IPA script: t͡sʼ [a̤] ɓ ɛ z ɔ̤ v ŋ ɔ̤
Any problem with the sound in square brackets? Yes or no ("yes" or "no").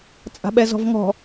no